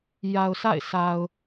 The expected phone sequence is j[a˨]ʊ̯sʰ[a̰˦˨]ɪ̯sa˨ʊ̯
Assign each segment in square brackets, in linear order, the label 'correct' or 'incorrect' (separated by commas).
correct, correct